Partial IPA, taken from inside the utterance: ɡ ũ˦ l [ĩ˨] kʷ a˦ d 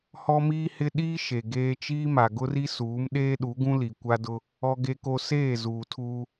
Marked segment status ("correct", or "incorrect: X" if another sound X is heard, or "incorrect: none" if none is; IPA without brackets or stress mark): incorrect: i˨